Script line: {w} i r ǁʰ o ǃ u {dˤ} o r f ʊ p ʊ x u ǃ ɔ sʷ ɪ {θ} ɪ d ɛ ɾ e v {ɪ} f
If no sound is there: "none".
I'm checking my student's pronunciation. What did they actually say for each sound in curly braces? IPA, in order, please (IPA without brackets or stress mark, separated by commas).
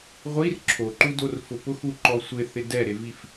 ʁʷ, d, θ, i